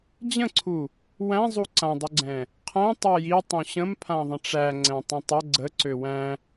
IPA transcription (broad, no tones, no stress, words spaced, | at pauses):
d͡ʑə̃ǀʰu | wæ̃ zˤuǀãdˤuɡ͡ǀɛ̃ | qʰæ̃ tˤɛji tˤũɕə̃m pʰãðˤə̃ʈ͡ʂæ ŋ͡ǀɛ̃tˤũtˤə ɡ͡ǀə ǀøwæ̃